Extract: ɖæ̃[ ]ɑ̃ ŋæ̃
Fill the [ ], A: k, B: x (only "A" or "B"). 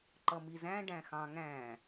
B